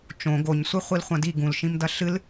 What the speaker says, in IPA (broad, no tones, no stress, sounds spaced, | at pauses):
t͡ʃ õ ɡ o ɲ sʷ e χʷ i l χʷ ɐ̃ d i ɡ ũ l ʃ ĩ m d ɐ ɬ ɨ l